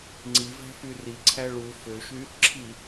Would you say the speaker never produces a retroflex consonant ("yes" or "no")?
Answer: no